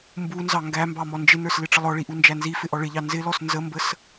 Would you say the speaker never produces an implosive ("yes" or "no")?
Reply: yes